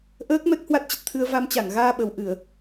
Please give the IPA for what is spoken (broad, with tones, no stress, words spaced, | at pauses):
ʔəː˦˥k̚ mɛ˦˥k̚hwa˦˥t̚t͡ɕə˨˩t̚t̪ʰɨ˧ə̯ va˧mt͡ɕa˧˩ŋɣaː˧ ɓə˨˩wʔɨ˧˩˨ə̯